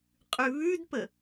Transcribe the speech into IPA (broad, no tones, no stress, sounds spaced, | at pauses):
qʼ ʉ β ʉ d p ə